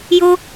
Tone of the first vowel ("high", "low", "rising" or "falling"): high